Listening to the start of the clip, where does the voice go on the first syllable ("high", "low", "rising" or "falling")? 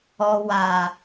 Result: low